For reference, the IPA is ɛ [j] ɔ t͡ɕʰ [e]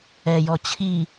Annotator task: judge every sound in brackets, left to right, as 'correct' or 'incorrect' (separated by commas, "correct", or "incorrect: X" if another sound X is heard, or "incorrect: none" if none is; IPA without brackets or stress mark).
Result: correct, incorrect: i